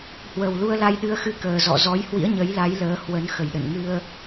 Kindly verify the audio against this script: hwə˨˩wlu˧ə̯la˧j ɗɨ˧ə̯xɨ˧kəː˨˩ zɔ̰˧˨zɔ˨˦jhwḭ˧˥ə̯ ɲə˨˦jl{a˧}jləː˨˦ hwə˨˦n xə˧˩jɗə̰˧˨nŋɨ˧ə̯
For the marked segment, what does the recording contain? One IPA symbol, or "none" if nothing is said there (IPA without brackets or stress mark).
a˨˦